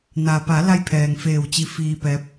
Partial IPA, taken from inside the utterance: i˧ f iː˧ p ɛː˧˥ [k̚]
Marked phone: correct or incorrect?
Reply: incorrect